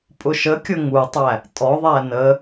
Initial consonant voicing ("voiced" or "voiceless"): voiceless